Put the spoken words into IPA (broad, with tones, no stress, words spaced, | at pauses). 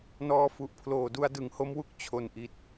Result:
nɔː˧fu˨˩ʔpʰloː˨˩ du˧a̯dɯ˩˦ŋho˦˥mwu˦˥k̚ t͡ɕʰo˨˩nʔi˨˩t̚